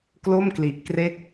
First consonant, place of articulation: velar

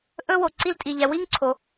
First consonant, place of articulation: glottal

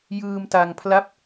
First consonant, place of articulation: palatal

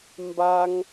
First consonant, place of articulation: labial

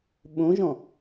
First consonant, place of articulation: labial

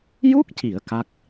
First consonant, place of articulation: palatal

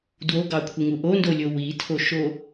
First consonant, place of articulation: alveolar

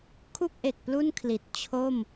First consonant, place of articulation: velar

